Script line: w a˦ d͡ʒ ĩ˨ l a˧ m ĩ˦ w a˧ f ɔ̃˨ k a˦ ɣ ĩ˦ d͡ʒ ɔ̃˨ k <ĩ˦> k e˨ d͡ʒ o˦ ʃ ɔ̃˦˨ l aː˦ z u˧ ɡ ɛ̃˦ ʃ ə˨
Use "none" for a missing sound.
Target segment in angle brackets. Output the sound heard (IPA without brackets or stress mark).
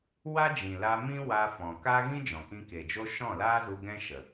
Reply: ĩ˧